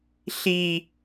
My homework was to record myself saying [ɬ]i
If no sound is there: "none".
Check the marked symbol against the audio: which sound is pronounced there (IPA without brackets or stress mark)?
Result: ɬ